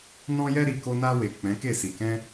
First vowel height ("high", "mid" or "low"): mid